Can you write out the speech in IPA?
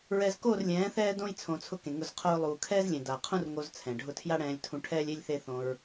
ɹ ɛ˧ z k o˦˨ r lʲ ɛ̃ː˨˦ θ ɛː˦ d õ˦ j t͡sʰ õ˨ t͡sʰ ʊ˧ k ẽ˨ ŋ ʊ˦˨ z qʰ o˦ ɹ lˠ uː˨ kʰ ɛː˦ z lʲ ẽ˨ d a˨ qʰ ũ˦ r ŋ o˧ z t͡sʰ ɛ̃˨ ɖʱ ʊ˦ tʰ j a˦ ɽ ɛ̃ː˧ lʲ tʰ ũ˧ ʈʰ ɛː˦ lʲ e˦ lʲ θ e˧ θ õ˧ ɹ

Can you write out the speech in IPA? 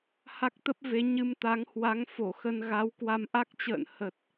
h a˦˥ k̚ t̪ ə˦˥ p̚ v e˨˦ ɲ ɨ˧ m t̪ a˨˦ ŋ h w a˨˦ ŋ f o˧˩ x ə˧ n ɣ a˨˦ w k w a˧ m ʔ a˦˥ k̚ t͡ɕ ə̰ː˧˨ n h ə˨˩ t̚

